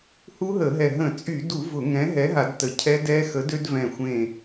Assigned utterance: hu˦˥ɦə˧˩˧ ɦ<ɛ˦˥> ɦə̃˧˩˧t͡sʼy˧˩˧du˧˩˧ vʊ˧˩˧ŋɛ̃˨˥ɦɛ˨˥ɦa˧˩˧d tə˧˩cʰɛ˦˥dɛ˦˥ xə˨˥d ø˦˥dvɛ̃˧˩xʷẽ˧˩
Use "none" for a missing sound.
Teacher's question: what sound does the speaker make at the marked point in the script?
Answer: ɛ˧˩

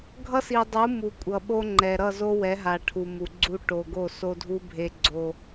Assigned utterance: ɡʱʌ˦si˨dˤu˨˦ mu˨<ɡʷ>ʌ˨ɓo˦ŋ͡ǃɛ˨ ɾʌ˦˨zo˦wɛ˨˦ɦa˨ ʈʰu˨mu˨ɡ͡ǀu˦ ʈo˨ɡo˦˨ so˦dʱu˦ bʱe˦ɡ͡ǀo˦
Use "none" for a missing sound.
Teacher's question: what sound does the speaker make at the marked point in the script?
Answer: kʷʼ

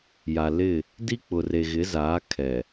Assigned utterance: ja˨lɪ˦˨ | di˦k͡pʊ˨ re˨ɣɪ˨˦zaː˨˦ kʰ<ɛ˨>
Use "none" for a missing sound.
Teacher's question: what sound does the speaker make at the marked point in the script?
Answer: ɛ˨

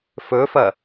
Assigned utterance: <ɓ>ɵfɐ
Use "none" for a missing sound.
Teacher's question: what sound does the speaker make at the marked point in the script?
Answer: f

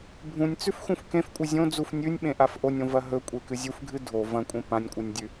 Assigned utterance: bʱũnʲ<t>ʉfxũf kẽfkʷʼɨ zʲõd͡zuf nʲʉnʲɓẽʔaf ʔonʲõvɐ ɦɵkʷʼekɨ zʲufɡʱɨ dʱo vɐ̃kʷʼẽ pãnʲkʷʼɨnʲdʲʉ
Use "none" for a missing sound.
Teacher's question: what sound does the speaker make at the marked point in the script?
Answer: t͡s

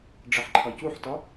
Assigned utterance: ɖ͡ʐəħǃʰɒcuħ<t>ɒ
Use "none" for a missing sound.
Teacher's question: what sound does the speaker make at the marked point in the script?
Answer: t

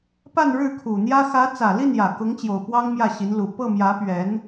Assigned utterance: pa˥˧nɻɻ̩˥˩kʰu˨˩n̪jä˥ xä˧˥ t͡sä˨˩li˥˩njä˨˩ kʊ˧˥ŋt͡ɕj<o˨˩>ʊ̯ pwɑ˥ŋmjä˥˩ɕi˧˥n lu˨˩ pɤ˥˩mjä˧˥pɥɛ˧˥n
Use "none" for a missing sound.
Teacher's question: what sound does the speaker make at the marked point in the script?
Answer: o˨˩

